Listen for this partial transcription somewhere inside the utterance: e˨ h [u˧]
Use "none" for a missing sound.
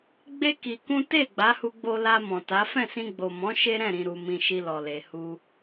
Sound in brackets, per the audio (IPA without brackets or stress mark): u˧